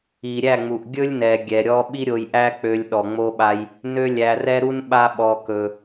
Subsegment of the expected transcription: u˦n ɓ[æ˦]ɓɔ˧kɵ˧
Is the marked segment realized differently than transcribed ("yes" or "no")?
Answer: yes